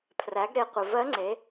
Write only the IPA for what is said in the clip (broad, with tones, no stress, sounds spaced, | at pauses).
pʰ r æ˩˧ ɡ ɾ e˩˧ qʷ ə˩ v ɜ˧˥ ŋ͡ǀ e˩˧